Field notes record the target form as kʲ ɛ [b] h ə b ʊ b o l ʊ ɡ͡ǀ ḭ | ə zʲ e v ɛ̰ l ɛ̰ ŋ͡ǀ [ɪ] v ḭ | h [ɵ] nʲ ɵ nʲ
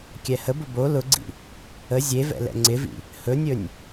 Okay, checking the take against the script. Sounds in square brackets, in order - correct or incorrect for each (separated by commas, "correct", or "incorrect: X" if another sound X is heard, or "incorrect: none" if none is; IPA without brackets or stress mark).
incorrect: none, correct, correct